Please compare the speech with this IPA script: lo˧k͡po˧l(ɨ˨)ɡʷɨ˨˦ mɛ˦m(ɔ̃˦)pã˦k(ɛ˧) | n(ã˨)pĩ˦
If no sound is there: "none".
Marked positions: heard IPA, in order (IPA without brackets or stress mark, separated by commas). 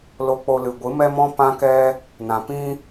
ɨ˨, ɔ̃˦, ɛ˦, ã˨